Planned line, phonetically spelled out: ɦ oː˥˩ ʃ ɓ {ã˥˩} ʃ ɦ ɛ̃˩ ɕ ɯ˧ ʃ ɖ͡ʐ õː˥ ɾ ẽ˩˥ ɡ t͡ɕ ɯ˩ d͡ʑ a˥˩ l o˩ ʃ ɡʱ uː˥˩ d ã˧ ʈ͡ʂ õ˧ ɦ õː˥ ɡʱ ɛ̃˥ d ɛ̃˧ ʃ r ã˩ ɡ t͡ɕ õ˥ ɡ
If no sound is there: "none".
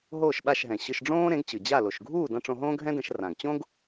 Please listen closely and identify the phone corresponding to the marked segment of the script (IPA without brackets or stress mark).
a˥˩